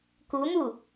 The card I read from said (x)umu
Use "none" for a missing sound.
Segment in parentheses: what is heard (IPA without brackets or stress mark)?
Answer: k